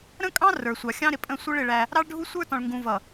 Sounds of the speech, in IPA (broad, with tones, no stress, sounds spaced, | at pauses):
ɾ ə̃˦ kʼ ɑ̃˦ r ə˞˨ sʷ ɑ˨ xʲ ɑ̃˦ ɾ ɪ˨ pʼ ə̃˦˨ sʷ ə˦ ɭ ɪ˨ ɭ æ˦ | ɾ ɑ˦ ɭ ɖʱ u˦ sʷ ə˞˦ t ɔ̃˨ ɭ ŋ ɡ ũ˨ v ʌ˨